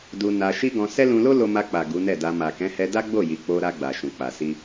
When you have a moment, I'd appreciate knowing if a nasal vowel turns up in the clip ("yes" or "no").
yes